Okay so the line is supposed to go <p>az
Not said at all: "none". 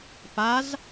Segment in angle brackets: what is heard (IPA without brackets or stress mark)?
p